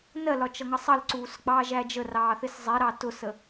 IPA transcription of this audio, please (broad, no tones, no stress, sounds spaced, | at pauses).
n ɜ l ɒ t͡ʃ ʌ ŋ ʌ sˤ ʌ l ǀ uː s ɡ͡b ɑː ʒ æ d͡ʒ ə r ɑː θ ɪ s zˤ ɛ ɾ ɑ t ʊ s ə